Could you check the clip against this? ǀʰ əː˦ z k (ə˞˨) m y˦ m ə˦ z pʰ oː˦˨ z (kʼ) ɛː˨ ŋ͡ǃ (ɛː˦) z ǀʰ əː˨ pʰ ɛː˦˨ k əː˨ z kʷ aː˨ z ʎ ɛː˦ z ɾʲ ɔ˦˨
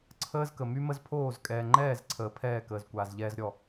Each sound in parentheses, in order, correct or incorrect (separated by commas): incorrect, correct, incorrect